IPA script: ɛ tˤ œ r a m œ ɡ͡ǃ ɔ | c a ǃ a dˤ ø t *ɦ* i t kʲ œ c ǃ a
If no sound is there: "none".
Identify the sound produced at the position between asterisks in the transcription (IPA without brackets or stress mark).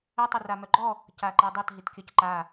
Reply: ɦ